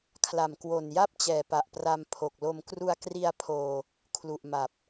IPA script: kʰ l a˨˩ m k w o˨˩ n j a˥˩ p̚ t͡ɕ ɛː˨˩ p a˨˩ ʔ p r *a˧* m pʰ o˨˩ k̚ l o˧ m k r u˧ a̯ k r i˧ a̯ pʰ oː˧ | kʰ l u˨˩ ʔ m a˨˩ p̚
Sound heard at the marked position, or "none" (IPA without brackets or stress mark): a˧